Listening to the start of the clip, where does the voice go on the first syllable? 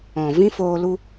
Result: low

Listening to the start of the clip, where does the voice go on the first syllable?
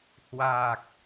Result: low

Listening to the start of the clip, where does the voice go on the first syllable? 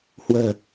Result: low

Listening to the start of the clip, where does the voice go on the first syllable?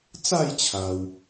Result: falling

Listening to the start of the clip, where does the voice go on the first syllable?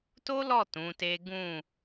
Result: high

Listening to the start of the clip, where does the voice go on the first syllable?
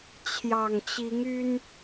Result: low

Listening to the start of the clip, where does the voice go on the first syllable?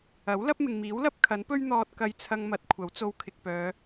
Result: rising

